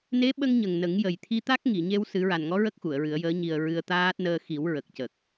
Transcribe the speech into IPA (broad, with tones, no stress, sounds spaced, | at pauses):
n e˧˥ ɓ ə˧ ŋ ɲ ə˨˩ ŋ n ə˨˩˦ ŋ j ə˨˩ j t̪ʰ i˧ t̪ a˦˥ k̚ ŋ i˨˩˨ ɲ e˧ w s ɨ˨˩˦ ɹ a˨˩ n ŋ ɔ˧˥ ɹ ə˦˥ k̚ x u˨˩˨ ə̯ ɹ ɨ˨˩˦ ə̯ j əː˧˥ ɲ i˨˩ ə̯ ɹ ɨ˧ ə̯ t̪ aː˦˥ t̚ n əː˧ x i˨˩˦ w ɹ ə˨˩ k̚ c ə˨˩ k̚